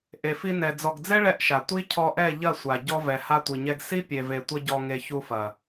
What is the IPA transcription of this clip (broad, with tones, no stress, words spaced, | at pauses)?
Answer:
ʔe˨fi˧nɛ˨ d͡zɔ˨ɡd͡zɛ˦ ɭɛ˦ʔʃa˨ tʷi˦cʰɔ˧ʔɛ˦˨ ʎɐ˦˨sʷa˨ɟɔ˧ vɛ˨ha˧tʷi˨ɲɛ˧ɡ si˦pʲe˨ve˨ tʷɐ˧ɟɔ˨ŋe˨ çu˧fɐ˨